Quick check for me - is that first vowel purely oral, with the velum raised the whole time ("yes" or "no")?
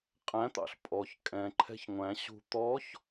no